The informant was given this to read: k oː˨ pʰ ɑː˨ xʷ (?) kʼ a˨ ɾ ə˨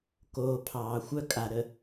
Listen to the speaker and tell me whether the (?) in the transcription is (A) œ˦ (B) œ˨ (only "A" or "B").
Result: A